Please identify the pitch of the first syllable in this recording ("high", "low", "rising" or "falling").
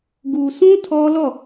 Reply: low